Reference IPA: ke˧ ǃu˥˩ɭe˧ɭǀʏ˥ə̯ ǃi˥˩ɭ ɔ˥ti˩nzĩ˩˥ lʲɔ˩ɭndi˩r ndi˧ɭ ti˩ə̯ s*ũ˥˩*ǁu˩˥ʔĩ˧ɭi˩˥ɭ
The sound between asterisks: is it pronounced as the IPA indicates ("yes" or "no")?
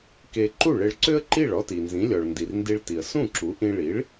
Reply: yes